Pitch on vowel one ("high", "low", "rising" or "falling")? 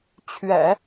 low